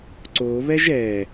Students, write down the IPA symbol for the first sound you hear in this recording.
ǀ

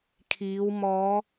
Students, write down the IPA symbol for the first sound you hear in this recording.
kʰ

